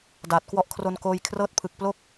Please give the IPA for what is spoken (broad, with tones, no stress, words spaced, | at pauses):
daː˨˩t̚kwɔ˦˥ʔkʰro˧nkoː˧j kʰrɤː˦˥t̚pʰɯ˨˩k̚ plo˥˩k̚